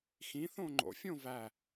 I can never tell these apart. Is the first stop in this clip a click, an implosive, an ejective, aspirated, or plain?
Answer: click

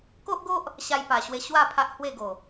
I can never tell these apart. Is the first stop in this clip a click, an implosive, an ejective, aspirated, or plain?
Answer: plain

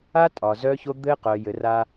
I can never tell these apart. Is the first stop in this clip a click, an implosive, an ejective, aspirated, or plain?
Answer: ejective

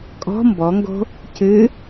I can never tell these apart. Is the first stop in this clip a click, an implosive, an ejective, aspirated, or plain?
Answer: ejective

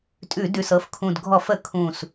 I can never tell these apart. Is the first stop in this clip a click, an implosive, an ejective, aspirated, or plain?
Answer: ejective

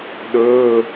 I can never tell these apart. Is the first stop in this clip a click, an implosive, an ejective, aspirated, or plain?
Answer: implosive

